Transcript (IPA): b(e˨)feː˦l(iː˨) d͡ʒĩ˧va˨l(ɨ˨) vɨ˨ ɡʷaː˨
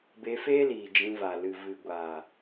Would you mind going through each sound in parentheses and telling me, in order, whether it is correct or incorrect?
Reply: incorrect, correct, correct

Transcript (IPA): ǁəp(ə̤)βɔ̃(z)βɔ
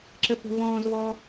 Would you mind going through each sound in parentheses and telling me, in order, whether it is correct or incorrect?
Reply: correct, correct

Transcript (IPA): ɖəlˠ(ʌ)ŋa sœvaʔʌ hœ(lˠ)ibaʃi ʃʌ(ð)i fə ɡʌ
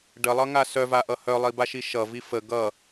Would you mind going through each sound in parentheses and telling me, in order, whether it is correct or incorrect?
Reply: correct, correct, incorrect

